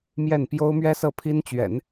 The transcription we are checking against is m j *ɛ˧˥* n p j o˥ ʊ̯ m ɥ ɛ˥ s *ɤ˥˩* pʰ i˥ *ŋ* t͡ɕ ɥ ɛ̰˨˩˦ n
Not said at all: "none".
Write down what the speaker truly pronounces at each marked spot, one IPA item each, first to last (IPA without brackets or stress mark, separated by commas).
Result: ɛ˥˩, ɤ˥˩, n